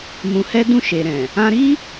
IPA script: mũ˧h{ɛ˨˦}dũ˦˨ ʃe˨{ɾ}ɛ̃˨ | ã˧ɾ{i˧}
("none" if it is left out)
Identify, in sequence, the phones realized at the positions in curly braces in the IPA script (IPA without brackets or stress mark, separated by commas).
ɛ˦, ɾ, i˦